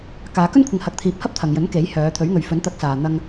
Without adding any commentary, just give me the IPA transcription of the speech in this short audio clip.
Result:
k aː˨˧ k ɵ˥ n kʷʰ ɪ˨ ŋ h ɐ˨ k̚ t̪ʰ iː˨ p̚ h ɐ˥ p̚ t̪ʰ ɐ˨ ŋ j ɵ˨˥ n k e˨˥ j h œː˨˧ t̪ʰ ɵ˨˥ ɥ ŋ ɵ˨ ɥ f ɵ˨˥ n t̪ ɐ˨˥ k̚ s aː˨ n̪ ɐ˧ ŋ

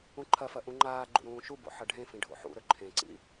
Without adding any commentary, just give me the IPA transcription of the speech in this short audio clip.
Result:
ũ ǃʰ ɐ f ɐ ʔ ũ ŋ͡ǃ aː ɡ͡ǃ ṵ ɾ ũː ʃ u b o̰ ħ ɐ ɖʱ ẽ f ĩ ɖʱ o̰ ħ ṵ ɾ ɵ ǃʰ ẽ ǀ ḭ

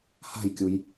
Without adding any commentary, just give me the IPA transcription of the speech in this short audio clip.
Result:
h a̤ j kʲ u j

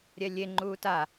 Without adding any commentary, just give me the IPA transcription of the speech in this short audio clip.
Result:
ɾʲ ɛ lʲ e ŋ͡ǃ uː t a

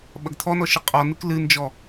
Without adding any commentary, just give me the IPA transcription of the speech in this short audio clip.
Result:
ɓ ɐ ɡ t̪ʰ ɔ n ɔ ʃ ɨ qʼ ɔ n ɨ k l ɨ n d͡ʒ ɔ

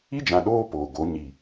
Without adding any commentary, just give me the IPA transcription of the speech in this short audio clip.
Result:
i˦ d͡ʒ ã˨ ɗ oː˦ p oː˨ ɡ o˨˦ ɲ i˨

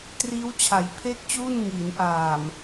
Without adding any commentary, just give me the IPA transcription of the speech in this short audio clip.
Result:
t r iː˦˥ w t͡ɕʰ a˩˦ j pʰ e˥˩ k̚ t͡ɕ uː˥˩ n ŋ iː˩˦ n ʔ aː˨˩ m

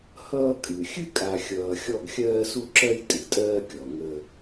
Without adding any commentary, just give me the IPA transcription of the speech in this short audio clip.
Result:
h ʌː˦ kʼ ɨ˨ xʲ ɨ˦ kʼ a˨ xʲ ʌː˨ xʲ ɔ˦˨ ɡ xʲ ɜː˦ s u˦ ǁ ɜ˦ j tʼ ɨ˨ tʼ ɜː˦ kʲ ɔ˨ ŋ ə˦

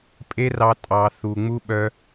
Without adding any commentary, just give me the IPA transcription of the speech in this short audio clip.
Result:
pʼ e˦ r ɑ˧ tʼ ɑ˨ θ u˨ ŋ͡m u˦ ɓ œ˧

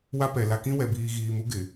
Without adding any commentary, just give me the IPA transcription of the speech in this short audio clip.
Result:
w a˦ p ɛ˨ l a˨ k ĩ˦ w ɛ˨ b iː˨ ɣ iː˨ m u˦ ɡ ɪ˨

